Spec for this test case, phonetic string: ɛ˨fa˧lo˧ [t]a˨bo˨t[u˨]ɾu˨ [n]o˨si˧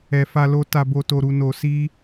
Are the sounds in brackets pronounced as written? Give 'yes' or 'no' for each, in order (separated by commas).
yes, no, yes